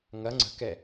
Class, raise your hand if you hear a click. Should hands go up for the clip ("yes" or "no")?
yes